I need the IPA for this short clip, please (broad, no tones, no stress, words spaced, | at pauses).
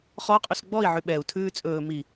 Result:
χɔqʼus ɡ͡bɔi̯ʕy ɓɛu̯tʰʉː t͡sʼɵː mi